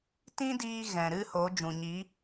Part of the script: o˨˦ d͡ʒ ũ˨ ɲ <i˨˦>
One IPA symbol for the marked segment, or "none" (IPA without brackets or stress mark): i˨˦